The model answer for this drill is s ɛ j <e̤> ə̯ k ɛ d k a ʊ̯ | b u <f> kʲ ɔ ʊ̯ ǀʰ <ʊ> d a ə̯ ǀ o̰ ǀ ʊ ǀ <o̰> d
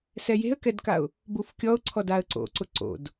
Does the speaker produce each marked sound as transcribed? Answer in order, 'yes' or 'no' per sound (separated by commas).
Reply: yes, yes, no, yes